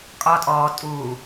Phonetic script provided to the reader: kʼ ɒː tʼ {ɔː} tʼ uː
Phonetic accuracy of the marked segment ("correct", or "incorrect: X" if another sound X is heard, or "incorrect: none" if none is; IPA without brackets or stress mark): correct